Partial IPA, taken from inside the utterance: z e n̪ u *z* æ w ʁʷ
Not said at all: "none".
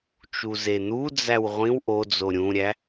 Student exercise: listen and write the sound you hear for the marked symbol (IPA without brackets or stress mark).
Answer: d͡z